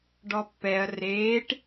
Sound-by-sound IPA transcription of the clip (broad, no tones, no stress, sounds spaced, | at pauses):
ɖ ɔ pː ɛ ɐ̯ r eː ʈ